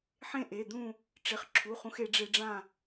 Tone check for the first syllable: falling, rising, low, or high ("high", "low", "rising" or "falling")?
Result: falling